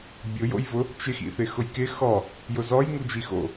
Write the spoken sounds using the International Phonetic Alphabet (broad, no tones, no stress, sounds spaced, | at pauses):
bʲ ʊ j o̰ j v ʊ | t͡ʃ ɪ x ḭ θ ɪ x ʊ j k ɪ x ɔ | j ʊ z ɔ j ŋ u d͡ʒ i x o̰